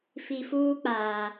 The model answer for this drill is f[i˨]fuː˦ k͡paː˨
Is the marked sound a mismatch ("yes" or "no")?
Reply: no